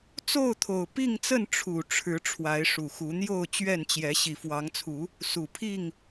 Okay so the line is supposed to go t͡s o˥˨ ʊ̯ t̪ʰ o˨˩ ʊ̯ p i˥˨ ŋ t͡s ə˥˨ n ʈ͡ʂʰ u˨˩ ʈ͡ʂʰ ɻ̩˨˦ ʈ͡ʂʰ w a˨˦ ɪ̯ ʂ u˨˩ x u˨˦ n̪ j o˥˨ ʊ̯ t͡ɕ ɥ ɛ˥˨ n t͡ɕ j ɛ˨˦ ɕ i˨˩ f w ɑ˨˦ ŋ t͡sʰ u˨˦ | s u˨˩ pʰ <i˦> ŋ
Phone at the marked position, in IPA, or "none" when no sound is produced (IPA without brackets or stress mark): i˥˨